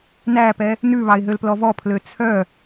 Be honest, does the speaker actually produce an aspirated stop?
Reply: yes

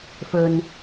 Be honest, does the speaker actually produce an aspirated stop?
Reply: no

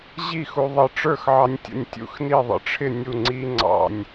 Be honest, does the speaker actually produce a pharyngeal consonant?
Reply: yes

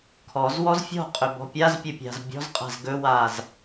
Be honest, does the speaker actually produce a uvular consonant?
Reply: yes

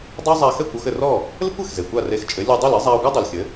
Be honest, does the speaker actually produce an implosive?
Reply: no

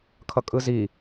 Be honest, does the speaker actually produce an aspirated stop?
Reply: yes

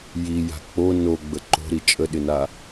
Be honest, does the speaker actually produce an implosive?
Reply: yes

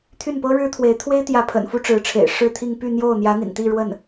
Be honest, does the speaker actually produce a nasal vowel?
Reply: no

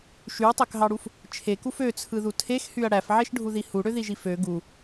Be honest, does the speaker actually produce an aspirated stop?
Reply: yes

